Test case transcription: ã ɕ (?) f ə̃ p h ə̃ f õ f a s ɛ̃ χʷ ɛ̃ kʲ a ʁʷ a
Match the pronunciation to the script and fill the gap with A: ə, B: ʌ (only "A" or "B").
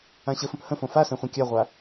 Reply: A